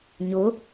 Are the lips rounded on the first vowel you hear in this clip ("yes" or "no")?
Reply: yes